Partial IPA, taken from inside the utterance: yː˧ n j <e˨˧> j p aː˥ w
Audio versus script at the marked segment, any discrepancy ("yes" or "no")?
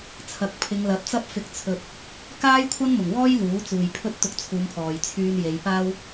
no